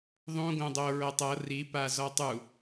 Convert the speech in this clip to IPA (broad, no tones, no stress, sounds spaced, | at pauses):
ðˤ ũ ɡ õ dˤ o ɹ ɤ tˤ ɤ r i p a z ɔ tˤ u